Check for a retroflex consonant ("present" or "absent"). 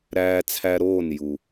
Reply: absent